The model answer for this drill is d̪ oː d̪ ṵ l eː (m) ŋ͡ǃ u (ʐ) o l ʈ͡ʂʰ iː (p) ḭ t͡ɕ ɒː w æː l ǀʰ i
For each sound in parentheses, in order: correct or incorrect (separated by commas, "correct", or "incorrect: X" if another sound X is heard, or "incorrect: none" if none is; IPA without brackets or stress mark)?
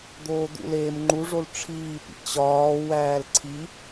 correct, correct, correct